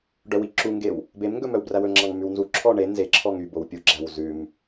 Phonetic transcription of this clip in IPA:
ɖœwiǁuŋɡew | bemŋɡɵ mœwbræwɵŋ͡ǁɑŋ mʉwnzuǁʰɔ ɳe nzeǁʰɔŋ ybow pʲuɡ͡ǁæw zʉm

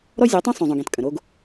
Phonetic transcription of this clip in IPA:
ɾɔ˦zʲɔ˨˦tˤũ˦ sˤũ˨zˤõ˨ɡẽ˨t kʼə̃˨ɾo˦ɡ

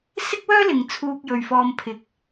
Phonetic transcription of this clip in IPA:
sɪ˥k̚wœː˥lɪ˨ŋ t͡sʰuː˧k̚jɵ˨ɥfɔː˧m pʰɪ˨k̚

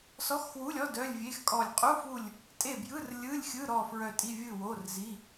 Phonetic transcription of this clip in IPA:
sɔ˧˥˧xwu˧˥˧lʲɔ˧˥˧ dœ˧˥˧lʲvʲe˧˥˧xkʼɔ˦˨lʲ qʼu˧˥˧fu˦˨lʲ | tʼe˦˨bjɯ˧˥˧r lʲɯ˧˥˧lʲxʲɯ˧˥˧ɾɔ˦˨ fɹœ˦˨tʼi˧˥˧ vʲɯ˦˨ wo˧˥˧rzi˧˥˧

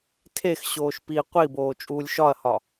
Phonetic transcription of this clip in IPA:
tʰexɕoːʃ pi qʷiboː t͡ʃʼuːlʲʃɒɐ̯hɒ

